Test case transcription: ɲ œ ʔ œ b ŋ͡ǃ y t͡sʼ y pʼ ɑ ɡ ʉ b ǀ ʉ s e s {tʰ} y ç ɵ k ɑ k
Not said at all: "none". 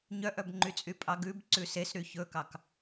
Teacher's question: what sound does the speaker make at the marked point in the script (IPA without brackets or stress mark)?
ɾ